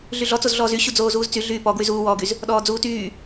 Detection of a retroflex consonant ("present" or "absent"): absent